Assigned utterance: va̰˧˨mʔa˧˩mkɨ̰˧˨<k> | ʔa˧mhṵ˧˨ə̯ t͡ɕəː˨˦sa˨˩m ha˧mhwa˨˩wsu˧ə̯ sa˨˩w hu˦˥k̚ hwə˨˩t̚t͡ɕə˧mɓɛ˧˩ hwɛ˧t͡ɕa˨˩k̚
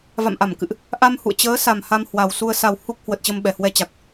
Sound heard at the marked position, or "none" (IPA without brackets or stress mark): ʔ